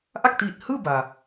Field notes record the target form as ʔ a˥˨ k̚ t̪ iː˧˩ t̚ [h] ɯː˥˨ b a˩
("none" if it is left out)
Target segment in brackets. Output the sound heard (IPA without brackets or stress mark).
h